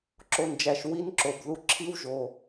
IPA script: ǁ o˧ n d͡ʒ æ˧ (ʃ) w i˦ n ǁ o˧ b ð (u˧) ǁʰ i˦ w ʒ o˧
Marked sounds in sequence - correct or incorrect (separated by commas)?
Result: correct, correct